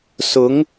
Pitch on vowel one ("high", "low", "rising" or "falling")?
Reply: rising